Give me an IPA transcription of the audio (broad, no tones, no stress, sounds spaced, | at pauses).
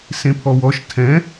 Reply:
s ẽ pʰ ɔ w ɔ ʃ tʰ ɛ̃